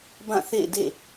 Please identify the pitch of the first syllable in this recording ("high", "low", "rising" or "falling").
falling